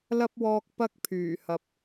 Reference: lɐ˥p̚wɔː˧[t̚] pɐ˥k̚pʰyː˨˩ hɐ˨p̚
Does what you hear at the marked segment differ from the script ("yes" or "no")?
yes